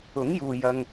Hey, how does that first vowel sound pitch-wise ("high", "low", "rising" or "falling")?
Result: rising